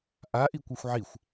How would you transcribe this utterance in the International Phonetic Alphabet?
ʔa ʔikʷɤxʷʕixʷ

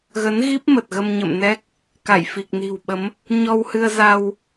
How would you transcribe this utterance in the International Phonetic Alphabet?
ɣə˨˦nɣi˦˥p̚ mə˨˩t̚ɣə˧mɲə̰˧˨mnɛ˦˥k̚ | ka˧˩jfi˨˩k̚ni̤˨˩wɓə˨˦m | ɲɔ˧whɨ˧ə̯za˧w

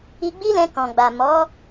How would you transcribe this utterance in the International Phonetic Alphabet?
i˧ɡ͡bi˦lɛ̃˧ kɔ̃˨ɡ͡ba˨ mɔ˨˦

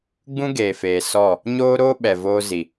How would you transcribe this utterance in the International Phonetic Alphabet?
ɡ͡bũ˦ɡeː˨feː˨ sɔ˦˨ | ɲoː˦ɾoː˦ɓɛ˨ voː˧zi˨

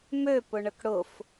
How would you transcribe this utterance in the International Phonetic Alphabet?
møpʊɳək ɽʊf

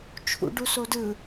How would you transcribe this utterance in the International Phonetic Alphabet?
t͡ʃʰṵɖu sodɯ

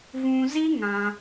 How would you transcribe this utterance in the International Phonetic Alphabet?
vũ˧ zi˦ ŋã˧

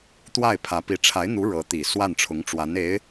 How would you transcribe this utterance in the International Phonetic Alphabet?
t̪wa˥˩ɪ̯pʰä˧˥pi˧˥ ʈ͡ʂʰa˧˥ɪ̯n̪u˧˥ ɻɤ˧˥t̪i˨˩ swa˥˩nʈ͡ʂʰʊ˧˥ŋʈ͡ʂwa˧˥ne˧˥ɪ̯

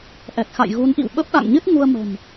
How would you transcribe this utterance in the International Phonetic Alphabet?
ʔɛ˨˩k̚xa̰˧˨j ɣu˨˦nʔḭ˧˨w ɓə˦˥p̚ɗa̰˧˨ŋɲɨ˦˥t̚ ŋu˧ə̯mə̤˨˩m

